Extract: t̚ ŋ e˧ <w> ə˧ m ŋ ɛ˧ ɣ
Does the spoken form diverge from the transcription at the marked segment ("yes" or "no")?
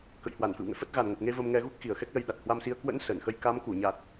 yes